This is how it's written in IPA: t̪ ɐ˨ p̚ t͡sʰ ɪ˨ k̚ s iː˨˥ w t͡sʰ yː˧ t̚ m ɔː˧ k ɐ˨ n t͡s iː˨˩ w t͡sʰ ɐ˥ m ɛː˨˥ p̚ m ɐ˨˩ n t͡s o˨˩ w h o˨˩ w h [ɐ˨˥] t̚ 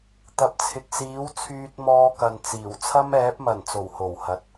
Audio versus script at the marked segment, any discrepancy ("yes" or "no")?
no